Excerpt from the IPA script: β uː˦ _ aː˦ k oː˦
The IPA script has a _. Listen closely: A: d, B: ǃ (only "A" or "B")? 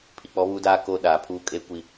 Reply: A